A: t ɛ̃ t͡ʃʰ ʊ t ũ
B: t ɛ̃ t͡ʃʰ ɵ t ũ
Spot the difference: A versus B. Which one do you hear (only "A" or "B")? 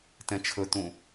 B